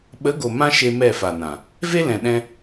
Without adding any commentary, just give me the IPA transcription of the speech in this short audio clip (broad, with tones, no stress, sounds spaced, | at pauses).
ɓ ə˨˦ ɡ o˨ m ã˦ ʃ e˧ m ɛ˦˨ f a˨ n ã˨ | v e˦ l ɛ̃˨ ɗ ɛ̃˧